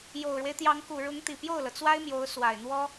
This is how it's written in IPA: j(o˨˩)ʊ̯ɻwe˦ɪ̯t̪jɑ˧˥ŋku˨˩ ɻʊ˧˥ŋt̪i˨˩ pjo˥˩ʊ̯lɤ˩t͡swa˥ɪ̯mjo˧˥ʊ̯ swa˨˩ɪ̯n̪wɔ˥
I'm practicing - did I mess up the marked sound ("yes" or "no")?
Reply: no